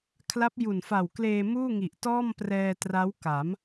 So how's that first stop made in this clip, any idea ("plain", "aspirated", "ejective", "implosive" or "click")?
aspirated